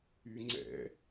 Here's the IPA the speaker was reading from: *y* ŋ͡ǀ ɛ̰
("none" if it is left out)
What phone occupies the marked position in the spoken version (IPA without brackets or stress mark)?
y